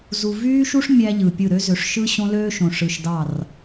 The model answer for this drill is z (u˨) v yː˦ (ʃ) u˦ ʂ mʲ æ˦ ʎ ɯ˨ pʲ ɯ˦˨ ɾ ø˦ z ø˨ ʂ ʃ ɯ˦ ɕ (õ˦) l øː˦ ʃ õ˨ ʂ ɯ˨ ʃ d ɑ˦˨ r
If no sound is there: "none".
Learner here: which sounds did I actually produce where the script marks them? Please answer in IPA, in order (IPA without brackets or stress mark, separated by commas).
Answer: u˨, ʃ, õ˦